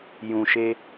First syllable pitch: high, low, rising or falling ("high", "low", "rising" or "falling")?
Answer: low